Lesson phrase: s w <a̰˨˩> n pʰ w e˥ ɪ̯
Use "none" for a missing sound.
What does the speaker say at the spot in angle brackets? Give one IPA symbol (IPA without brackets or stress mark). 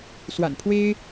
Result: a̰˨˩